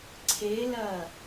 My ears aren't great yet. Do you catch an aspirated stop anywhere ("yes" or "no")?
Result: yes